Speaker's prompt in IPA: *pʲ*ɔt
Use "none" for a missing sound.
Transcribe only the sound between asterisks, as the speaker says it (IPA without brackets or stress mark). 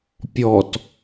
pʲ